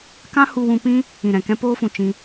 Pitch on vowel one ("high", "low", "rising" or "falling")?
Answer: high